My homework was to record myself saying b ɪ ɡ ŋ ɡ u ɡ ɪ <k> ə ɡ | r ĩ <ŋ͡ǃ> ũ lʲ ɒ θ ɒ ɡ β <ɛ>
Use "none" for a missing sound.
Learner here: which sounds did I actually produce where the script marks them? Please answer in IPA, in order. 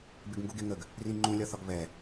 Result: ŋ, ŋ͡ǃ, ɛ

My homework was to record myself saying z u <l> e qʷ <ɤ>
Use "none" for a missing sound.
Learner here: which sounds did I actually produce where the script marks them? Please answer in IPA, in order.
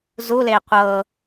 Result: l, ɤ

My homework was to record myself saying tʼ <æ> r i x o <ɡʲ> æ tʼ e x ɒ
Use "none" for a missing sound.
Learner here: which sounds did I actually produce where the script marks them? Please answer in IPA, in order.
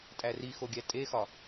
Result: æ, ɡʲ

